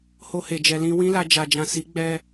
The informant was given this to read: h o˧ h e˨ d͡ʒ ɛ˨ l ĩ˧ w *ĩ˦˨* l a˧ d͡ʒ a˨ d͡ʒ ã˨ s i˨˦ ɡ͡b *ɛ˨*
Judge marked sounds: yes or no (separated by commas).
no, no